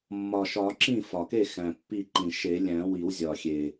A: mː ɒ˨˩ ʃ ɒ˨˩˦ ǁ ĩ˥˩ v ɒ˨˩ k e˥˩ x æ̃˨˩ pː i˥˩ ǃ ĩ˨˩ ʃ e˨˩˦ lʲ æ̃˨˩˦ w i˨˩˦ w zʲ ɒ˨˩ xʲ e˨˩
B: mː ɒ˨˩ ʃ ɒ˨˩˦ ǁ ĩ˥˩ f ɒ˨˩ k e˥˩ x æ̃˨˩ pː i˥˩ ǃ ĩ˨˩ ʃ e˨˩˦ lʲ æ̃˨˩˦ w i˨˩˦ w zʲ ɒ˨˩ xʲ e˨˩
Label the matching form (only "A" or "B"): B